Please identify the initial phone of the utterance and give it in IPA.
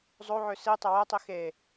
zˤ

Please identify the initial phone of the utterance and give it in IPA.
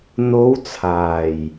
n̪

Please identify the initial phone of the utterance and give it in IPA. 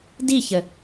d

